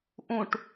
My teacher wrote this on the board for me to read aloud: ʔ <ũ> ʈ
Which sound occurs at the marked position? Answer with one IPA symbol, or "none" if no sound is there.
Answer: ũ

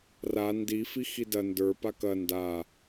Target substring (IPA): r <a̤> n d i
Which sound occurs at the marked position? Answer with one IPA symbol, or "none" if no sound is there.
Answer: a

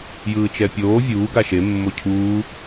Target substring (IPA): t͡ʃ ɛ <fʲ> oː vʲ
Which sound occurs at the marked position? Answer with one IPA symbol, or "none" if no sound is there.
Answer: pʲ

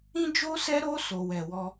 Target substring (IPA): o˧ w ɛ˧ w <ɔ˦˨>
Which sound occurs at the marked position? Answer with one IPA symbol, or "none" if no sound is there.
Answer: ɔ˦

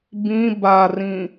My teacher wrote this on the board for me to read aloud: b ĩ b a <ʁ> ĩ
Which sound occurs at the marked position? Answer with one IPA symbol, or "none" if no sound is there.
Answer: r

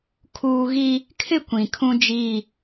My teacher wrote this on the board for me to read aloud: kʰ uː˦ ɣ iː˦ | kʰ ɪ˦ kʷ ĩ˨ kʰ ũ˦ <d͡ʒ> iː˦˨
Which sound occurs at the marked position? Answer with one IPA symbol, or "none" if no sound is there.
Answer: d͡ʒ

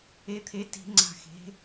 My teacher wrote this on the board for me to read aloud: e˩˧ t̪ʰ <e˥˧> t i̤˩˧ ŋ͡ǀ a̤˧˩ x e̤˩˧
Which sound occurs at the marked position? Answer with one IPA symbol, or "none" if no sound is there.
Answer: e˩˧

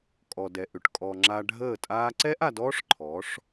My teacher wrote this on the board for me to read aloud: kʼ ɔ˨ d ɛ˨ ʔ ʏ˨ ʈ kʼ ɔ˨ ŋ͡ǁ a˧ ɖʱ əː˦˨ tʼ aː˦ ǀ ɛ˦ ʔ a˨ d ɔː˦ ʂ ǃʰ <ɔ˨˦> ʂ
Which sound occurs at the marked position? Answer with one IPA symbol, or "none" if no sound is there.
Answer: ɔ˨˦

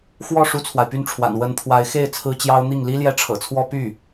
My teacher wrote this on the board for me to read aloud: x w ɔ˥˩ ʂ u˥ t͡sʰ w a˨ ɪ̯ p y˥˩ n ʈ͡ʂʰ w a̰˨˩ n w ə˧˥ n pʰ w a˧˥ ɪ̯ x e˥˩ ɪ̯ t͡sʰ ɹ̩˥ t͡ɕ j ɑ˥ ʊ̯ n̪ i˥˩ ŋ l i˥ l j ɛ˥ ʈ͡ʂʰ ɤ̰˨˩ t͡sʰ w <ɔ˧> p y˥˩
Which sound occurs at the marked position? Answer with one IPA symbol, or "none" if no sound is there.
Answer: ɔ˥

